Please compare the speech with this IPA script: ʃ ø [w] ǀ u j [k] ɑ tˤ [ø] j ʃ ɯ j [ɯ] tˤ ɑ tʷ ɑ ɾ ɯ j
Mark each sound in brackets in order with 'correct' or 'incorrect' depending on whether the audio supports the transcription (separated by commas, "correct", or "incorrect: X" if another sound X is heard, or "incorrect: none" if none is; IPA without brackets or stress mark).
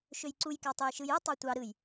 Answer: incorrect: j, correct, correct, correct